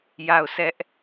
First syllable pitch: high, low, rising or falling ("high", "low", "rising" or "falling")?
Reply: falling